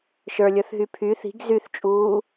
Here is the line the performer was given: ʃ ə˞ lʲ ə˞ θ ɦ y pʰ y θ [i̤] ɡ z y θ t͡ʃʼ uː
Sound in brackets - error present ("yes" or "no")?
no